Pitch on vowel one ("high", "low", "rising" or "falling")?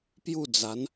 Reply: falling